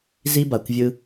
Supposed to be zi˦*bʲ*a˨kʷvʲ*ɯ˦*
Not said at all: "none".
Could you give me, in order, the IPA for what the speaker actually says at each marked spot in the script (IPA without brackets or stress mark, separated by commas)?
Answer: b, ɯ˦